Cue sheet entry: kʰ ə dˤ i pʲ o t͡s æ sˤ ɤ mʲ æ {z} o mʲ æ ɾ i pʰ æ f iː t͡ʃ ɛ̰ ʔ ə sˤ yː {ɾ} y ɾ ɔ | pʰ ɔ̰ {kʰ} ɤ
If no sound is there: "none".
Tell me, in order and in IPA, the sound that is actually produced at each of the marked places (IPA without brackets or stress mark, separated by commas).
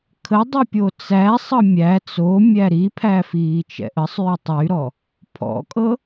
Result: t͡s, tˤ, kʼ